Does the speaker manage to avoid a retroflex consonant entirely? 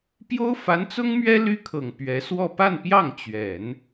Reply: yes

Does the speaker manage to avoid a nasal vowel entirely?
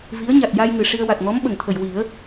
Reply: yes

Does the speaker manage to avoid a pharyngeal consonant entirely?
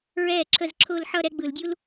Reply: no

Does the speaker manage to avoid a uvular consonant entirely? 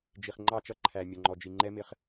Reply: no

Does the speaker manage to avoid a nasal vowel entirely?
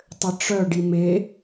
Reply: yes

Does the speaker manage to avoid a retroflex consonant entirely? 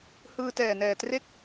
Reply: yes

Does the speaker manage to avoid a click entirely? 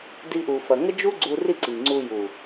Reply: no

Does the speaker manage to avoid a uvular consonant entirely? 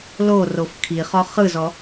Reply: no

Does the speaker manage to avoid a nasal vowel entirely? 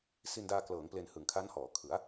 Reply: yes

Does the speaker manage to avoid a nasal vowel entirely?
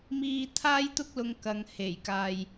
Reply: yes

